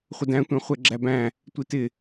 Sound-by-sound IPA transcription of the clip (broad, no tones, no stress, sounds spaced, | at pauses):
χʷ ə d æ̃ tʷ æ̃ χʷ ɛ ɡ͡ǁ æ b æ̃ | tʷ i t ɪ